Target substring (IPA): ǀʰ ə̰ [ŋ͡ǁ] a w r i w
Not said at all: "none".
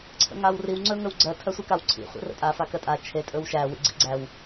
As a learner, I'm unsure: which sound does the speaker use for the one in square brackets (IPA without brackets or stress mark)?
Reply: ŋ